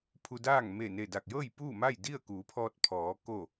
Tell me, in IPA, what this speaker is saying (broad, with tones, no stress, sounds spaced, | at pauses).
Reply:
pʰ u˧ d aː˥˨ ŋ m e˧˩ n e˧˩ d a˧˩ k̚ j ɤː˥˨ j p uː˥˨ m a˥˨ j d i˥˨ ə̯ k uː˩˧ pʰ ɔː˧ t̚ pʰ ɔː˩˧ k o˧˩